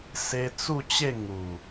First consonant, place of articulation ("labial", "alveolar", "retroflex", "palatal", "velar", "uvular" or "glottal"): alveolar